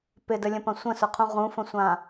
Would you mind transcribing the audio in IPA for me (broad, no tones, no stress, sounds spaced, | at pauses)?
p ɪ d ə lʲ ə̃ p ɐ̃ sʷ ə̃ s ʊ qʰ ũ ʁ ũ f ə̃ sʷ ã